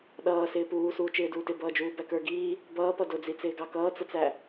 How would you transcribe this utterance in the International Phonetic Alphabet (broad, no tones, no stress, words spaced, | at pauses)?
ɗʌː sɪːpuː suːt͡ʃɪːduːtɪ bʌːd͡ʒuːbækə˞ ɡiː | bʌːpʌ dʊd͡zit͡sɪː ɡɑkʌːt͡sət͡sæ